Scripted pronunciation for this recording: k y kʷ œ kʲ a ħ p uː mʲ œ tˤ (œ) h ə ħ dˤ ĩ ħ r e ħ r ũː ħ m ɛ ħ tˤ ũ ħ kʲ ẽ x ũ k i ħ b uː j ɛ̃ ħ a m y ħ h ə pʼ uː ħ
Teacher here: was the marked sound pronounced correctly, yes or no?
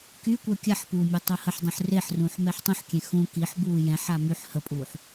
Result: yes